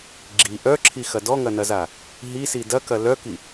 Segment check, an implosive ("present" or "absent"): absent